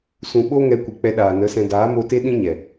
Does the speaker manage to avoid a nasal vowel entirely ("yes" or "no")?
no